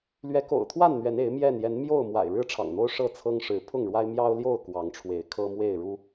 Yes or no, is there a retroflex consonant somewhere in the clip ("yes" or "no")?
yes